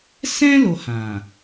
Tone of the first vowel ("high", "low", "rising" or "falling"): high